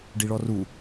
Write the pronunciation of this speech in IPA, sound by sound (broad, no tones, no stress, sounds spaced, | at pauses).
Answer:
ɖ i ɭ ɔ r u